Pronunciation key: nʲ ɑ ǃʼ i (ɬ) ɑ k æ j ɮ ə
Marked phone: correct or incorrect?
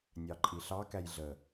correct